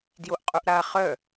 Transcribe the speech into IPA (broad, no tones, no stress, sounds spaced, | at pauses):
d j o ʔ qʼ u ʔ ɾ a χ œ